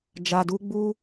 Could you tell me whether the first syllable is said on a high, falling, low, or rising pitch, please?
low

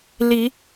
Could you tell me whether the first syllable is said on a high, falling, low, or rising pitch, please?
rising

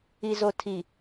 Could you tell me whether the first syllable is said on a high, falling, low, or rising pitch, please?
low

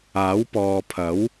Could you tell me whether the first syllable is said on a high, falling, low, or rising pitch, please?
rising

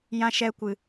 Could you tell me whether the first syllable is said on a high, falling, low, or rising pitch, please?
high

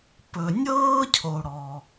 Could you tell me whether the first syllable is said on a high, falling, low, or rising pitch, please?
low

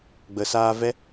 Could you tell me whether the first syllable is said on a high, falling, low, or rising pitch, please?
low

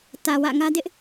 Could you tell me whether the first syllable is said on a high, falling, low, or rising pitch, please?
low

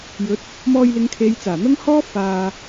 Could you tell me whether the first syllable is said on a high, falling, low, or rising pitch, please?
rising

